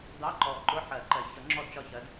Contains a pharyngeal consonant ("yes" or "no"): yes